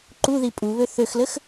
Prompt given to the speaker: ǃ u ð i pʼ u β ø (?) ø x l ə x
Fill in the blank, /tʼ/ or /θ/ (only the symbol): θ